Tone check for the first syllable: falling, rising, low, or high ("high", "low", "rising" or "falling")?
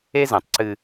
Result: high